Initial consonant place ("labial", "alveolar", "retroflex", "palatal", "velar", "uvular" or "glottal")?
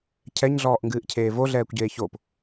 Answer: palatal